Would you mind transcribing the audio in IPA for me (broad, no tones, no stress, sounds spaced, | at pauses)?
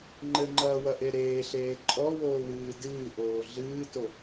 ŋ͡ǃ ɘ ŋ͡ǃ ɐː w ɐ ʔ e ɾ eː ɬ eː ǃʼ ɔ w oː w ɨː d ɨː ʔ oː ɮ ɨː t o